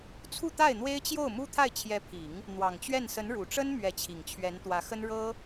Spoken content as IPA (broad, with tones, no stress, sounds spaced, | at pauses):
t͡sʰ u˥˧ t̪ a˥˩ ɪ̯ n̪ w e˥ ɪ̯ t͡ɕ j o˥˩ ʊ̯ m u˥ t̪ʰ a˥˩ ɪ̯ t͡ɕʰ j ɛ˧˥ pʰ i˨˩˦ ŋ | n̪ w ɑ˨˩ ŋ t͡ɕ ɥ ɛ˥˩ n s ə˧˥ n ɻ u˨˩ ʈ͡ʂ ə˥ n m ɥ ɛ˧˥ t͡ɕʰ i˨˩ ŋ t͡ɕʰ ɥ ɛ˧˥ n t̪ w ä˧˥ x ə˥ n ɻ ɤ˥